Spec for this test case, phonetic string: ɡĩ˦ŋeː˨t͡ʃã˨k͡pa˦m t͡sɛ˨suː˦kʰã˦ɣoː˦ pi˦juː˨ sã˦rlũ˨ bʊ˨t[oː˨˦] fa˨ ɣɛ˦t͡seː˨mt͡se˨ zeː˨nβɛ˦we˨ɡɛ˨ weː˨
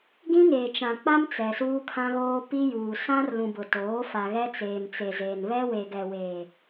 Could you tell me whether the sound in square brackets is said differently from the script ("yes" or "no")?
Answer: no